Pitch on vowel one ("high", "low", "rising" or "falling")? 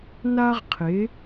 high